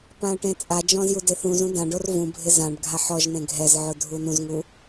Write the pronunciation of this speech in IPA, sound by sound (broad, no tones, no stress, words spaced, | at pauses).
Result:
pãə̯ʈẽt͡sʼad͡ʒɔ̃z judeθũzũ dãɖor vũbʱɪ zãɖ ɡʱaħɔʒn̪ẽ ɡʱɛzʕʊ dʱunũzŋu